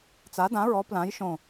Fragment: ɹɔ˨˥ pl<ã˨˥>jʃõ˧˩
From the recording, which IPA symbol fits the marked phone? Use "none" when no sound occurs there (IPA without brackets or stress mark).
ã˨˥